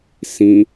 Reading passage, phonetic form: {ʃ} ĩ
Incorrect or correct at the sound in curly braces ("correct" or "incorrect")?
incorrect